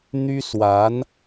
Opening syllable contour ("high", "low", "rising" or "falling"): high